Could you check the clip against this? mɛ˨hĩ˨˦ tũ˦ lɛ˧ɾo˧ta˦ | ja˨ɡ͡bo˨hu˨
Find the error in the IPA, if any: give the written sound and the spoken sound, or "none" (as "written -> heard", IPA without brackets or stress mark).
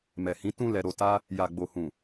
u˨ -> ũ˨